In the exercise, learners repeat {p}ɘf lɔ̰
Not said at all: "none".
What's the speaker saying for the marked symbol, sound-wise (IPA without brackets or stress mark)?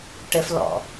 ʈ